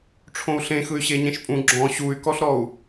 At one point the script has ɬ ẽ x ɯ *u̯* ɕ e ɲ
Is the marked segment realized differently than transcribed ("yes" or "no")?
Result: yes